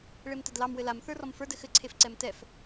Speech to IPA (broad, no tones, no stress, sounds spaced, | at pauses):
ɭ e m t ɘ d l ɑ m w ɘ l a m θ ə˞ r ɔ m f ə˞ d ɘ x ɘ ǀʰ e f ǀ ɛ m t ɛ f